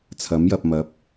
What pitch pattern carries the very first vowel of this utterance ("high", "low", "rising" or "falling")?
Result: rising